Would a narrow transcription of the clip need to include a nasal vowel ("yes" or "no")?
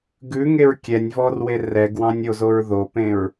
yes